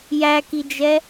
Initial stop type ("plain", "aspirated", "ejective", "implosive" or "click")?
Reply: plain